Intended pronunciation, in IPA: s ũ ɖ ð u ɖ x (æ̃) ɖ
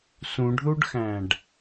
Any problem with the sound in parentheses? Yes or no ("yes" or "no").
no